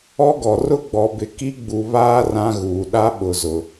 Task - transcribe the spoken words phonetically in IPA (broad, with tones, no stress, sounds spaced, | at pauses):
ɔ˦ ɡ ɔ˨ r ʊ˦ ɡ͡b ɔ˨ b ɪ˨ k i˦ ɡ͡b u˨ β aː˦ r ã˦ ɣ uː˨ ɗ a˦ ɓ ʊ˨ z ʊ˨